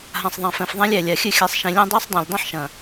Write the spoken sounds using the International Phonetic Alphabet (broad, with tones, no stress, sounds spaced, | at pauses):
ɦ ã˨ sˤ ðˤ ã˨ f ɛ̃˨ f ðˤ æ̃˦ lʲ æ˨ lʲ a˨ xʲ ɨ˦˨ xʲ æ˨ sˤ ʃ ẽ˨ lʲ ɐ̃ː˦ dˤ ɨː˦ sˤ dˤ æ̃˨ lʲ dˤ ɐ̃˦ ħ ʃ ɐ̃ː˨